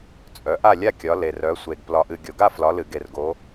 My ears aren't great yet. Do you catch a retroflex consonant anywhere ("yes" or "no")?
no